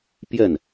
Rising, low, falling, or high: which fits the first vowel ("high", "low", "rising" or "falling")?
falling